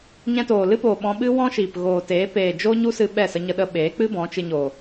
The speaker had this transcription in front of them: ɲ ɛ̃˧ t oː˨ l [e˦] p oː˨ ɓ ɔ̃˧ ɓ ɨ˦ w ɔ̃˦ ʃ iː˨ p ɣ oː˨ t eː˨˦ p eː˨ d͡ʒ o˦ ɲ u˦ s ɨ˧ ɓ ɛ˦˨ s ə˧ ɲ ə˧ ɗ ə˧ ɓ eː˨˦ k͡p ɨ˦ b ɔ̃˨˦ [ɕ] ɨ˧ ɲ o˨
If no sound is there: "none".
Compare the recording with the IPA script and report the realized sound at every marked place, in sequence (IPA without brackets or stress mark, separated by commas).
ɨ˦, t͡ʃ